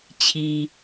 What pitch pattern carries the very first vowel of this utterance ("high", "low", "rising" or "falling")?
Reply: low